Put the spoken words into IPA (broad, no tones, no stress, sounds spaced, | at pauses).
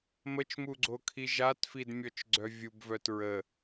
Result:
m ə t͡ʃ m u ɡ͡ǀ o kʰ i ʒ a t f i d mʲ ɔ t͡ʃ ɡ͡ǀ œ vʲ u b v œ t ɹ ə